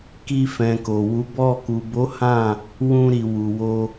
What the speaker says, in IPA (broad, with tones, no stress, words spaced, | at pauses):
ki˧fɛ̃˨ ko˨wu˨˦bɔ˦˨ ku˨bo˨˦ hã˦˨ | wũ˧ɾi˨wu˨wo˧